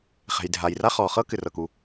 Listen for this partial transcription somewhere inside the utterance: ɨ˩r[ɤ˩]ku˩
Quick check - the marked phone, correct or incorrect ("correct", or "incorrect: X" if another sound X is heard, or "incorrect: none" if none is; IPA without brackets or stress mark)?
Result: correct